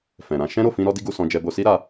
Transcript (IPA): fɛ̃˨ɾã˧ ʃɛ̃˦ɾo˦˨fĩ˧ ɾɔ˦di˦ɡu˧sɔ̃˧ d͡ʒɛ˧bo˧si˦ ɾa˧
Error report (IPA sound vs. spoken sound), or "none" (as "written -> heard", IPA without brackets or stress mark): none